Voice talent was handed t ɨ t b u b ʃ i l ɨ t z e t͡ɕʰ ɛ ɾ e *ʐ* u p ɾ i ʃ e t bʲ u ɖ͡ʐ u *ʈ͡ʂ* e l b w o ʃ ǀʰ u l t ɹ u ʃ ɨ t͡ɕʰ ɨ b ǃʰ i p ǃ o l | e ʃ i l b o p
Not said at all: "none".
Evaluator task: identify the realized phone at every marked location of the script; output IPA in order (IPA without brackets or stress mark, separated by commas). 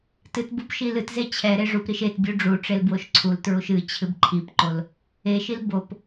ʐ, ʈ͡ʂ